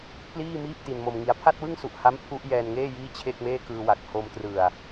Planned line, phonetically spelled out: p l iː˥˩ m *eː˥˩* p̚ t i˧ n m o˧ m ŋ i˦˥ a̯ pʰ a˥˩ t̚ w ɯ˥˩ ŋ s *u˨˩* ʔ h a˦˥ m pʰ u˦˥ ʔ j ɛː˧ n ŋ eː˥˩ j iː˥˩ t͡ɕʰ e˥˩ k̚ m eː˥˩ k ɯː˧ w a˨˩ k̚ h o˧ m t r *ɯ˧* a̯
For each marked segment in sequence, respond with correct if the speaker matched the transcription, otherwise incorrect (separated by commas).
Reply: incorrect, correct, incorrect